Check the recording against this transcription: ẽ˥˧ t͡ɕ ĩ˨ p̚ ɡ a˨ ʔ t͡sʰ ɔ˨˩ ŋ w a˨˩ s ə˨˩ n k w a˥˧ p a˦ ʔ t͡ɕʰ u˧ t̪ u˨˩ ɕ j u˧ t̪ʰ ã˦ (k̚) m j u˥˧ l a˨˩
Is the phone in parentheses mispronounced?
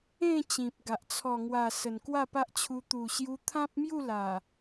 yes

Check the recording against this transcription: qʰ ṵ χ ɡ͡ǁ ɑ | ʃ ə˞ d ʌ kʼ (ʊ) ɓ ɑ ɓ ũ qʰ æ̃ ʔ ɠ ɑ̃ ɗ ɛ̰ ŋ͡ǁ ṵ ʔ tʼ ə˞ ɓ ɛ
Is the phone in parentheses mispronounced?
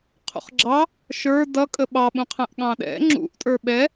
yes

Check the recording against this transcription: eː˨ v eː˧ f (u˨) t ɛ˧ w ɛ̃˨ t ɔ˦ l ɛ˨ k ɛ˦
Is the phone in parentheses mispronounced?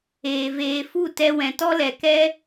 yes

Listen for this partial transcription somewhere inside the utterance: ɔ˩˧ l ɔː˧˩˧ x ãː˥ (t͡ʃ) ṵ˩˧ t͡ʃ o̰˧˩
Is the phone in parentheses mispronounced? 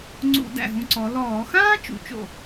no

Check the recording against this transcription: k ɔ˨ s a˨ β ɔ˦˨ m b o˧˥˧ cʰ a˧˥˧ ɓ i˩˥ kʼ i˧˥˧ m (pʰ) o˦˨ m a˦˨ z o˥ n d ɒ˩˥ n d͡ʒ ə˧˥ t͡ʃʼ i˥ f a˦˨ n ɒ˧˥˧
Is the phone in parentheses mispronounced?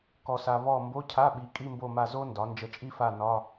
yes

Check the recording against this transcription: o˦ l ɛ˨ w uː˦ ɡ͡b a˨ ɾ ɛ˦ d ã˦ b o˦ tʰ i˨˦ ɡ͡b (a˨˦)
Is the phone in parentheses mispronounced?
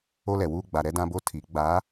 no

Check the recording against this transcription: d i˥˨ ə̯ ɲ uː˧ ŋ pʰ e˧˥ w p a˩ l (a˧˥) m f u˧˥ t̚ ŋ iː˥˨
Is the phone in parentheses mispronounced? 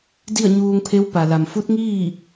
yes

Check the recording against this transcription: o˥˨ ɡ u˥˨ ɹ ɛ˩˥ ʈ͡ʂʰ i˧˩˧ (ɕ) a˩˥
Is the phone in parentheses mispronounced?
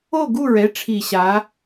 no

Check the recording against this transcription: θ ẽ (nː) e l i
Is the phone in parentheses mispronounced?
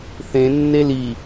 no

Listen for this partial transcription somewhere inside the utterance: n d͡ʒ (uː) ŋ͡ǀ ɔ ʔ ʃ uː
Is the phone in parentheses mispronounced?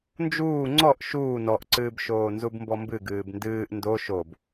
no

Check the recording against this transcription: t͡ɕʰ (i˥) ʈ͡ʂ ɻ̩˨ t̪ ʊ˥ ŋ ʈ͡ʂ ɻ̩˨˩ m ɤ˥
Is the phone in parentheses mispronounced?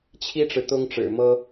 no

